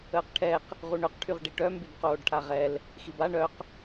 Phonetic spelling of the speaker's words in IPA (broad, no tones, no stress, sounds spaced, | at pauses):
əː q ʈʰ ɛ q | ʁ u ɳ ø q ʈʰ y ʁ ɖ i ʈ œ m b y b q oː ɖ ʈʰ a ʁ ɛ l | x i b a ɳ œ q